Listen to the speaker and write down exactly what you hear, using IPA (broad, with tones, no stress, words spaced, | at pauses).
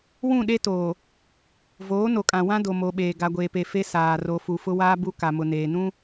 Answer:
wũ˦˨ɗe˦toː˨ | voː˨˦no˨kʼã˨ wã˦ do˨mo˨ɓeː˨ ɡa˨ɡʷeː˨pe˨ fe˦ saː˨ ro˨fu˨ fʊ˦waː˦bu˦ ka˨mʊ˨neː˨nũ˦